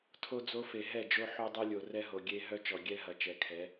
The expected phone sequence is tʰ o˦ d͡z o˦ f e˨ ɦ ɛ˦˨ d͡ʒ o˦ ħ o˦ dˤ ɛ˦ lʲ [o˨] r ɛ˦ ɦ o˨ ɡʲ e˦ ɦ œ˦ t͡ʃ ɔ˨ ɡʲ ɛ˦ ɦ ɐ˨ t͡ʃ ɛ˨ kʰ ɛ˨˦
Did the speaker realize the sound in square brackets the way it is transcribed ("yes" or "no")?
yes